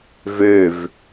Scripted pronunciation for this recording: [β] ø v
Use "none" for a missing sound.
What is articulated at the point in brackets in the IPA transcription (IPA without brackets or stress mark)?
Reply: v